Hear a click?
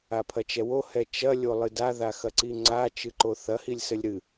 yes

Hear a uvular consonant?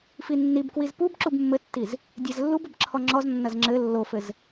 no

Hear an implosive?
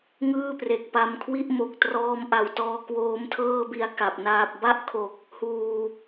no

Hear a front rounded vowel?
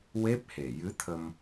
no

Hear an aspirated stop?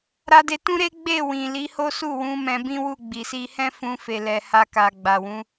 no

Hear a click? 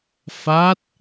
no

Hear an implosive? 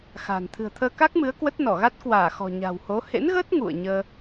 no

